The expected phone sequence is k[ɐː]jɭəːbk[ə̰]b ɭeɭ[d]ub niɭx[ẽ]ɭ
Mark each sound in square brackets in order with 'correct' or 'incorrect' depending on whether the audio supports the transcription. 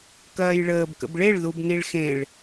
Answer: correct, correct, incorrect, correct

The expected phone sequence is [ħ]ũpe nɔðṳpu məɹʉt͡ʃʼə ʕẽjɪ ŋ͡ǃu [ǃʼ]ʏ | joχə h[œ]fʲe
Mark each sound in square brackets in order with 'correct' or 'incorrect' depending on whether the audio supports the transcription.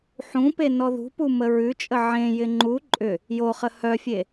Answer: correct, correct, correct

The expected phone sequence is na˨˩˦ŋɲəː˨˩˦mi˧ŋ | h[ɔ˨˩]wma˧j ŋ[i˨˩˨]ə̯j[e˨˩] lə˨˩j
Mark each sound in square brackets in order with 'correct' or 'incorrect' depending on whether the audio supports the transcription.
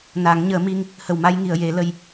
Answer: incorrect, correct, incorrect

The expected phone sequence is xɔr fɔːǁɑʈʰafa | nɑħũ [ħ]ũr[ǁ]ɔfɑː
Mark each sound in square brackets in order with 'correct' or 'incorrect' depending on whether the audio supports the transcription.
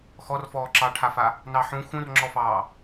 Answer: incorrect, incorrect

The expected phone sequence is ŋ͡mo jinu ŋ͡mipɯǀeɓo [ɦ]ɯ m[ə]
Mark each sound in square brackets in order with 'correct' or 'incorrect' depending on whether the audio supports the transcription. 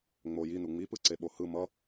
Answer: incorrect, incorrect

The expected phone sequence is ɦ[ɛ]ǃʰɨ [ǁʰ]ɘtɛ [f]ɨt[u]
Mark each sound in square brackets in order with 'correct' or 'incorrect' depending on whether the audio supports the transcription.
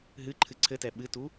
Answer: incorrect, incorrect, incorrect, correct

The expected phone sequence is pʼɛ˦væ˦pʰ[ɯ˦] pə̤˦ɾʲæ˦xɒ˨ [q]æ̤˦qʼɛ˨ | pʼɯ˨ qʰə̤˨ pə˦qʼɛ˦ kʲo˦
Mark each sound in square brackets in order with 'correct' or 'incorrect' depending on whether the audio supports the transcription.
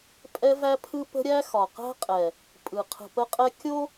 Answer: correct, correct

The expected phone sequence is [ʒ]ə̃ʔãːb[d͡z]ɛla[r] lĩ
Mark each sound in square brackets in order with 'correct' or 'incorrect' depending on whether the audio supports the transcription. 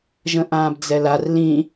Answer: correct, correct, correct

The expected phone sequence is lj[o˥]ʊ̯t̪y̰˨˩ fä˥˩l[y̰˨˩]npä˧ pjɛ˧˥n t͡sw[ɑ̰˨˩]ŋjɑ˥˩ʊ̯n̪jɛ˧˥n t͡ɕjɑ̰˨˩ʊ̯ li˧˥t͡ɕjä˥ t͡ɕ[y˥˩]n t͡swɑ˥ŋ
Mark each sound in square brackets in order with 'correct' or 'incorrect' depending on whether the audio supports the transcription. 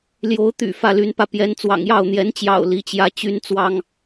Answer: incorrect, incorrect, correct, incorrect

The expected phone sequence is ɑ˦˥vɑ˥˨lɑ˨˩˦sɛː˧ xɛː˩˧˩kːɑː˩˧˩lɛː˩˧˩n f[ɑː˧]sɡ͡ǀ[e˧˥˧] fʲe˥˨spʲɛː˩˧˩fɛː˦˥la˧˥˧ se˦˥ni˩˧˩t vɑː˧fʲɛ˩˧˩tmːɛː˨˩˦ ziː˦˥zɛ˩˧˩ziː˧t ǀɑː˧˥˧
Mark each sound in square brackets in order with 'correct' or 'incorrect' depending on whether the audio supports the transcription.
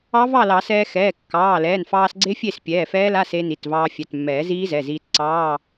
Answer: correct, incorrect

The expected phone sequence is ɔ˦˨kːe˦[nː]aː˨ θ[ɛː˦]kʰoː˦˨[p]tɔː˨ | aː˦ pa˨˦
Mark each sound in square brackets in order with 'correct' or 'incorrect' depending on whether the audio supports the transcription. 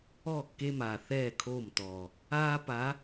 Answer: incorrect, incorrect, incorrect

